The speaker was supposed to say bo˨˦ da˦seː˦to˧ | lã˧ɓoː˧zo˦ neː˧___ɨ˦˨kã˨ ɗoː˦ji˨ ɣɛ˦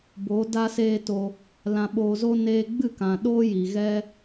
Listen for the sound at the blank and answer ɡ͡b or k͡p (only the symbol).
ɡ͡b